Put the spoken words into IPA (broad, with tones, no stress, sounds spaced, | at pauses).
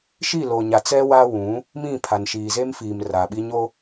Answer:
ʃ i˦˨ l o˨ ɲ a˨ t͡s ɛ˦ w a˦ w ũ˨˦ | m ĩ˦˨ pʰ a˨ n ʃ iː˨ z e˦ m f iː˨ m r a˨ ɓ i˦ ɲ o˦